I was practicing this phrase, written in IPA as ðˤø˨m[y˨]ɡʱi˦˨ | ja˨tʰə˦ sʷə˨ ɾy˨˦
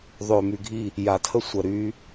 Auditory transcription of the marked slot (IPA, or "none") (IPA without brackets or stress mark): y˨